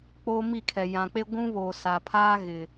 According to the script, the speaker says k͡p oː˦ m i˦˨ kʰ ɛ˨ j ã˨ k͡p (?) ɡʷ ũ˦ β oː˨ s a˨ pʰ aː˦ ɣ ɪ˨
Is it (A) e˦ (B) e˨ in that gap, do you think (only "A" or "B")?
A